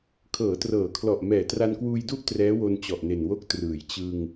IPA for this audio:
kʰɤː˩˦trɤː˩˦kʰlɔ˨˩ʔ mɛː˩˦tra˧nkwuː˧jdu˥˩ʔ trɛː˦˥wo˧n t͡ɕɔ˨˩ʔne˨˩nwo˥˩k̚ trɯː˩˦j t͡ɕɯ˧ŋ

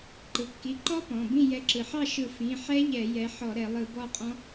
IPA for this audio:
ǃɯ˩kːi˩˧˩ǃɔ˦˥ pɔ̃˩˧˩bĩ˥˨ jɛ˨˦ǁɯ˩ħɑ˥˨ʃɯ˧˩˧ fĩ˩˧˩ħɛ˦˥ ʎɛ˧˩˧jɛ˨˦ ħɔ˧˩˧ɾɛ˧˩˧ lˠɯ˧˩˧bɔ˥˨qʼɔ̃˦˥

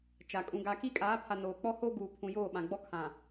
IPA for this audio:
t͡ʃa˨ kʼũ˨ ɡa˨ki˦kʼaː˨˦pʰa˨ noː˨ k͡pɔ˦ho˦ɡuː˨ pʰũ˨joː˦˨ɓã˨ɡ͡bɔ˦ kʰã˨

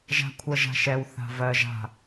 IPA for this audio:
ʒa̤kʷʰɜʒa̤ʃɛw θa̤vɜ ʒa̤

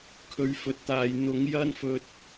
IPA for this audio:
kʰɵ˨˧ɥfɵ˨t̚t̪aː˨j n̪ʊ˨˥ŋjɐ˥nfɵ˧t̚

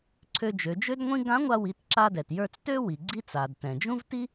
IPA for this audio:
ǀʰø˧d͡ʒø˩˧d͡ʒø˥dŋʷĩ˥ ɡã˧˥ŋʷa˧wi˩˧t ǁa˧dɛ˩tjə˞˧t͡s tø˥ wi˩ɡ͡ǀi˥t͡sa˩d tɛ̃˩d͡ʒũ˥vti˥

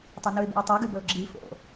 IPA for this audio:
tˤɐnuɪ̯bṵɪ̯tˤɵ ɡʉbɵʊ̯ɡ͡ǁi fo̰

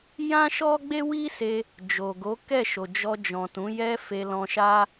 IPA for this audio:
jã˦ʃɔ˦ɡ͡be˦ wi˦se˧ | d͡ʒo˨ ɡo˨˦kɛ˦˨ʃo˨d͡ʒɔ˧ d͡ʒɔ̃˨tũ˨˦jɛ˦ fe˧lɔ̃˧ʃa˦

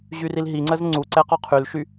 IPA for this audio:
ʑyrilɦiŋ͡ǀəz ŋ͡ǀuǀɛ qɔqʰylʃy

